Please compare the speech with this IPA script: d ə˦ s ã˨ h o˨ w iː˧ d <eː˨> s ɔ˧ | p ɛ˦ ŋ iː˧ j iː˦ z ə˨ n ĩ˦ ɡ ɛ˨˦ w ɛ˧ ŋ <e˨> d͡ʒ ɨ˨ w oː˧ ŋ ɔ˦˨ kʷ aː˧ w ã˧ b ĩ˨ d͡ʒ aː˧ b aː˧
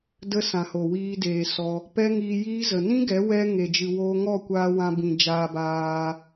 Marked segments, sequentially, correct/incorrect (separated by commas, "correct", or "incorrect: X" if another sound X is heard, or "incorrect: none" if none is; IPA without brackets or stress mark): correct, correct